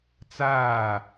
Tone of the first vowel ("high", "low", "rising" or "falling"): falling